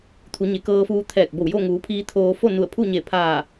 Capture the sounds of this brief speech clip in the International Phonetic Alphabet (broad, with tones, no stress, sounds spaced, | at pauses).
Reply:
t̪ʰ u˩˧ ɲ e˩˧ k ɤː˧ f uː˧ t̪ʰ ɛː˧˩ k̚ b o˧˩ w j o˥˨ ŋ uː˩˧ pʰ iː˧ t̪ʰ oː˧ f o˥˨ n u˧˩ ə̯ pʰ u˥˨ ɲ e˧˩ pʰ aː˧˩